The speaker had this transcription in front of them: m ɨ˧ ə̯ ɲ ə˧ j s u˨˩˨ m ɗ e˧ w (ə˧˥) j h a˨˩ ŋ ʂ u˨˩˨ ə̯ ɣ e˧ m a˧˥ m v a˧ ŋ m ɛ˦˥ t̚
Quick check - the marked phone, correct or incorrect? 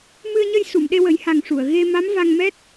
incorrect